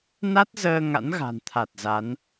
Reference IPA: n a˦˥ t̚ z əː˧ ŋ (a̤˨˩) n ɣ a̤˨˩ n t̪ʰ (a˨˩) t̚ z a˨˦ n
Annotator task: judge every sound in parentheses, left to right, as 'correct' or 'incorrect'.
incorrect: a̰˧˥, correct

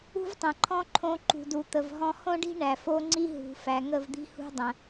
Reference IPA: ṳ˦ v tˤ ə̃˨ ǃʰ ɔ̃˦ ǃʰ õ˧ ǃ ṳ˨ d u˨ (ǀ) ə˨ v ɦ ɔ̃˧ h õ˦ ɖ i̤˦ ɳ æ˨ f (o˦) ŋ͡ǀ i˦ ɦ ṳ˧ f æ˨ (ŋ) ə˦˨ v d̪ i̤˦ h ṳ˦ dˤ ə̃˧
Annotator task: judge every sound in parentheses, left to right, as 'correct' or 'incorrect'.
incorrect: t̪, correct, correct

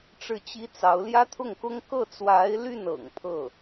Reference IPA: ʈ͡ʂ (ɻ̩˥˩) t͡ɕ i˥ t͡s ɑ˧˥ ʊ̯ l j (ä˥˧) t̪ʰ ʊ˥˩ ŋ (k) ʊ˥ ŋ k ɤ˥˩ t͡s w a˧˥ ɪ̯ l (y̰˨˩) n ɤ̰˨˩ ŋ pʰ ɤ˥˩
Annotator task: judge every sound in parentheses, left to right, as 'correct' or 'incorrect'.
correct, incorrect: ä˥, correct, incorrect: y˥˩

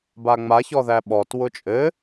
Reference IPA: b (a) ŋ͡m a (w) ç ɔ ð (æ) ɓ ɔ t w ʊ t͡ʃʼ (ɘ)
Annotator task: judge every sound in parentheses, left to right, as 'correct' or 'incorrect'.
correct, incorrect: none, correct, correct

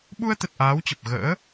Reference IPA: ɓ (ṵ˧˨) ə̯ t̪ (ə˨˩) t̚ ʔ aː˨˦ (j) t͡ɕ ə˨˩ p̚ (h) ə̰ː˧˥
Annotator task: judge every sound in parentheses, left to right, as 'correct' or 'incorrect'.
incorrect: u˧, correct, incorrect: w, incorrect: ɣ

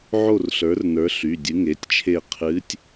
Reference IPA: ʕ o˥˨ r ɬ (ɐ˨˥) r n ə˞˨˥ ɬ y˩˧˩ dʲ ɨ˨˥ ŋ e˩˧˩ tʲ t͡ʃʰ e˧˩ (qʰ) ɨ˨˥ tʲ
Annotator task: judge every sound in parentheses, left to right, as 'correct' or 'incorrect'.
incorrect: ə˞˨˥, correct

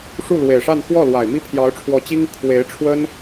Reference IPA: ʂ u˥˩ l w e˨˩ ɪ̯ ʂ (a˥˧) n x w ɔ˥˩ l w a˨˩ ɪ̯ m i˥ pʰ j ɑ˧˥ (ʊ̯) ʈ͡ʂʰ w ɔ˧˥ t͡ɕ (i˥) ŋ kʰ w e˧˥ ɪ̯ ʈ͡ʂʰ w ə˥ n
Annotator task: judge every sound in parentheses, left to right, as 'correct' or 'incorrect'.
correct, correct, correct

